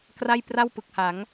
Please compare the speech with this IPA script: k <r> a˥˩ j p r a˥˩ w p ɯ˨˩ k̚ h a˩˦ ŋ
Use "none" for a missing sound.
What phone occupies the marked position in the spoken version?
r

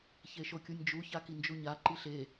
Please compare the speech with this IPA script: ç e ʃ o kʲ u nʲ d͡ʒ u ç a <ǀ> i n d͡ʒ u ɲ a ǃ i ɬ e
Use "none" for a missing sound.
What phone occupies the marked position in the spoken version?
k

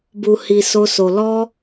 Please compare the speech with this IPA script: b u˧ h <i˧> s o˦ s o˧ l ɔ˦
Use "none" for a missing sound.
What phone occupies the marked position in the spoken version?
i˧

